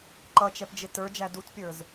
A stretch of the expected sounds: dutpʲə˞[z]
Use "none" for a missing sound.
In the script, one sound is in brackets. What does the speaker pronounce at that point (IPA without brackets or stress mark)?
z